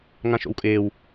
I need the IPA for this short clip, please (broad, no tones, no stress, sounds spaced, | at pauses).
ŋ ã ʃ o̰ w kʼ ɪː w